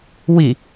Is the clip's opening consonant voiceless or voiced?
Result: voiced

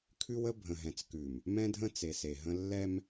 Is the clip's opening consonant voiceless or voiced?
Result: voiceless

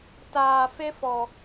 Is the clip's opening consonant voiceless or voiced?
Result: voiceless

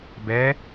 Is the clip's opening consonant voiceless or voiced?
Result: voiced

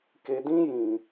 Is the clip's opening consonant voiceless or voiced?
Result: voiceless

